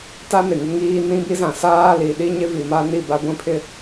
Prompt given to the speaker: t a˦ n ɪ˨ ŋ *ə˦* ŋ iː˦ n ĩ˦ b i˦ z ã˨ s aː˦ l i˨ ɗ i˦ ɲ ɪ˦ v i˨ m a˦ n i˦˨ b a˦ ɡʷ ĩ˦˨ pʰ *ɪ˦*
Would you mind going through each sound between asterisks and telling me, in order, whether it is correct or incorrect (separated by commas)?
incorrect, correct